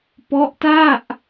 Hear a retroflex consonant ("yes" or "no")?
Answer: no